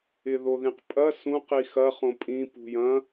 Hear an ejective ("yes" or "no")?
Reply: yes